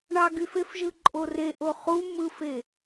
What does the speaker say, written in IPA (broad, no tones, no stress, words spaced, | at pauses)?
ɳɑɡyfefʒɯ ǃʼoreʔo χu mɯfe